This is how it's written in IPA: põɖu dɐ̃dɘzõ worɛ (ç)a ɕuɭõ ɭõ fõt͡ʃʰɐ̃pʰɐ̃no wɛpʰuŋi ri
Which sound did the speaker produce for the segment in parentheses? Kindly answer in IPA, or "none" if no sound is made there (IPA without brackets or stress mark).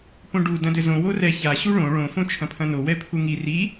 ç